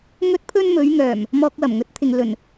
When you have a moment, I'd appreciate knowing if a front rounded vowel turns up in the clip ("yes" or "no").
yes